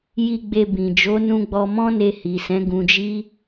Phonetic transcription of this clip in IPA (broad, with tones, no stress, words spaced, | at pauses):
ji˨ɡ͡be˨ bĩ˨ d͡ʒo˨˦nũ˧ɡ͡bɔ˧ mɔ̃˦ne˧hi˨sɛ̃˨˦ ɡũ˧d͡ʒi˦